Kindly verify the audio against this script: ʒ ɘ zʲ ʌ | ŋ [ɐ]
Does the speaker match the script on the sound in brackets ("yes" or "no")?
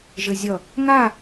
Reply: no